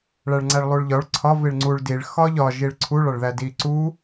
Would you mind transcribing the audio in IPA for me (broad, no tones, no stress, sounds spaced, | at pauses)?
ɭ æ ɭ ŋ͡ǀ æ ɭ lˠ u ɭ ʎ ɒ ɭ ǀʰ ɒ v i ɭ ŋ͡ǀ u ɭ d i ɭ x ɒ ʎ ɒ ʒ i ɭ ǀʰ u ɭ ɒ ɭ ð æ d i ǀ u